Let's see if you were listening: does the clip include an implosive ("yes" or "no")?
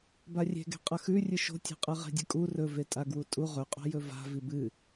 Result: no